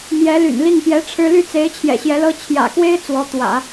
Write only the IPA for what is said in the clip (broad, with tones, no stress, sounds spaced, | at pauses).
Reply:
m j ɛ˧˥ l y̰˨˩ n l i˥˩ ŋ p j ɛ˧˥ ʈ͡ʂʰ ɻ̩˥ l y˥˩ t͡s e˧˥ ɪ̯ t͡ɕʰ j ɛ̰˨˩ ɕ j ɛ˧˥ l ɤ˥ t͡ɕʰ j ä̰˨˩ k w e˥ ɪ̯ t͡s w ɔ˧˥ t̪ w ä̰˨˩˦